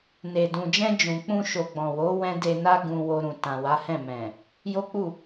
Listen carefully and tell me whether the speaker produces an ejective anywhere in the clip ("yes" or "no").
no